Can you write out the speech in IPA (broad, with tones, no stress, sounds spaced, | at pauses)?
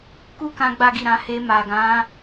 k u˦ k ã˦ ɡ͡b a˦ ɡ i˦˨ ɾ ã˨˦ h e˧ m a˨ ɡ ã˨˦